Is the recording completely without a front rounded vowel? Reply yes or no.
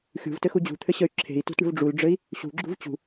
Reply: no